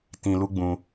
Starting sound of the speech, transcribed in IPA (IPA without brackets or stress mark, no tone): t